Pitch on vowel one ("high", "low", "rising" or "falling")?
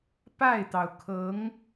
falling